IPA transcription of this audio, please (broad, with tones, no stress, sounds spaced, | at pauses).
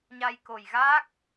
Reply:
ɲ a˧ j k o˨˩ j ɣ aː˦˥ k̚